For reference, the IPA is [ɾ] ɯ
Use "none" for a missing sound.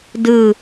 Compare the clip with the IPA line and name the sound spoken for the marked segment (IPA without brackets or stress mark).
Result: d